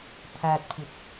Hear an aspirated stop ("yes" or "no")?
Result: yes